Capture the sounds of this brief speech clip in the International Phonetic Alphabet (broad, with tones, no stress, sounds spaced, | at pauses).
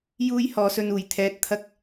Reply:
j uː˥ j h ɔː˨˧ s ɵ˧ n uː˨˩ j t̪ʰ ɛː˨ t̚ t̪ʰ ɐ˧ k̚